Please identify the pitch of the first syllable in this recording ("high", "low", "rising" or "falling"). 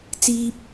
high